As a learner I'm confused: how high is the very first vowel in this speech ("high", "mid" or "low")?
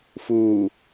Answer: high